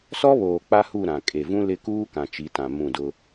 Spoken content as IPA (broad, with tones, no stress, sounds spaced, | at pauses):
s ɔ˦ β oː˨ k͡p a˦ h u˦˨ ɾ ã˨ kʼ e˨ v ũ˦ l ɪ˦˨ k uː˦ k ã˨ t͡ʃ i˨˦ t ã˨ m ũ˦˨ d ʊ˦